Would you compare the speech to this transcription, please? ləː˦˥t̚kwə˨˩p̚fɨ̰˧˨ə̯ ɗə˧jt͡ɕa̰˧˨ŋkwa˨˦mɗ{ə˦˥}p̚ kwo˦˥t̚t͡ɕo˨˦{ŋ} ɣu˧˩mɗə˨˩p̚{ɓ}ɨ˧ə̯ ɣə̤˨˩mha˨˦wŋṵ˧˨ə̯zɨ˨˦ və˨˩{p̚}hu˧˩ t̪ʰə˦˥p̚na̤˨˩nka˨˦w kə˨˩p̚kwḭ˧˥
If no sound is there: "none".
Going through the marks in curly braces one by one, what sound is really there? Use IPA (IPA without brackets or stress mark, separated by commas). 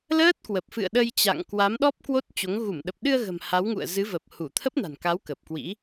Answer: ɔ˦˥, ŋ, ɗ, p̚